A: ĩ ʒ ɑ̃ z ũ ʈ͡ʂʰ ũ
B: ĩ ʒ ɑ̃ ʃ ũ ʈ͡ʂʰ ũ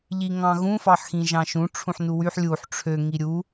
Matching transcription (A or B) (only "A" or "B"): B